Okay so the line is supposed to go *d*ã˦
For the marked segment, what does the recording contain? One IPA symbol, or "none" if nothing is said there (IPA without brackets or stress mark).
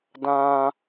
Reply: d